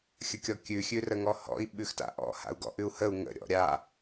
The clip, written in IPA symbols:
xʲ ə kʲ ɔ kʲ ʉ xʲ ʉ r ə ŋ ɔ h ɔ̰ i̯ ɓ ʉ x t a̰ ʔ ɔ̰ h a̰ u̯ ɡ ɔ̰ ʔ ʉ u̯ h ə u̯ ŋ ə̰ ɾʲ ɔ̰ ɾʲ a

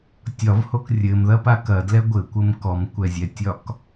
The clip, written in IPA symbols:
tʲ ɒ v h o k rʲ ɘ m ð ɐ p a k ɐ d l ɛ ɡʷ ɘ kʷ ɘ m k ɔ m kʷ ɛ zʲ ɛ tʲ ɒ k

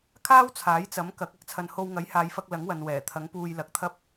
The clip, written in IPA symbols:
kʰ aː˥ w t͡sʰ aː˨˥ j t͡s ɐ˨˥ m k ɐ˨˥ k̚ ɐ˥ k̚ t͡sʰ ɐ˧ n h o˧ w ŋ ɐ˨˥ j h aː˨˧ j f ɐ˧ k̚ l ɐ˨˥ ŋ w ɐ˨ n w ɛː˨˩ t̪ʰ ɐ˨˥ ŋ p uː˧ j l ɐ˨˥ k̚ t̪ʰ ɐ˥ p̚

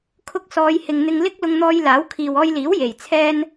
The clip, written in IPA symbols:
kʰ ʊ˧ k̚ s ɔː˨˧ j h ɪ˨ ŋ n̪ ɪ˧ ŋ l ɪ˥ k̚ l ʊ˧ ŋ n̪ ɔː˧ j l aː˨˥ w kʰ iː˨ w ɔː˧ j l iː˨˥ w j e˨˩ j t͡sʰ ɛː˥ n

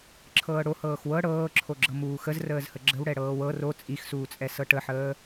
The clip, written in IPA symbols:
ǁʰ ɤː ɽ o h ɤː x w ɤ ɽ ɤː ǁʰ o ɡ͡ǁ ɤ m uː x ə z r əː z h ə ɡ͡ǁ ə w ɽ ɛ ɽ ɤː w ɤ r o t͡sʼ i x s uː t͡sʼ ɛ s ɤ ʈ ə ħ əː

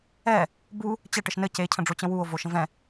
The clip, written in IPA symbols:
ɛ | b u | t͡ɕ ɛ ʈ ɘ ʃ n ɘ c e cʰ ə̃ ɖ͡ʐ o t͡ɕ ə̃ w u o̯ v o ʃ ə̃ v ɛ̃

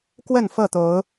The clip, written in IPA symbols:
k w ə˥˨ n f ɤ˥˨ t̪ o˨˦ ʊ̯

